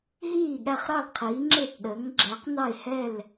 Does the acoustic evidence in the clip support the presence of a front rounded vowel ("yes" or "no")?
no